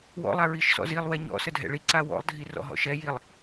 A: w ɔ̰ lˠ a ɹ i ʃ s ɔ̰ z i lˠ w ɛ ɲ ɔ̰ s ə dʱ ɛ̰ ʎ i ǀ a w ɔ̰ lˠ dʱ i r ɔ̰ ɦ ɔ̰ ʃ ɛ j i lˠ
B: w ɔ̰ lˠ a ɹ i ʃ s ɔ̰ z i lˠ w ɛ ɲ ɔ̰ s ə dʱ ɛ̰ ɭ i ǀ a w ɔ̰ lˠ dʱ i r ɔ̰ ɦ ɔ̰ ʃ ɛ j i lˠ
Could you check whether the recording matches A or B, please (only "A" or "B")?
B